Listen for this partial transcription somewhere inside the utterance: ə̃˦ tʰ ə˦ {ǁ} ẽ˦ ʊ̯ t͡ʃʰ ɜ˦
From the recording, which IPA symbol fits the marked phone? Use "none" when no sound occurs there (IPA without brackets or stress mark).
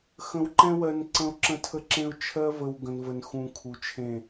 ǁ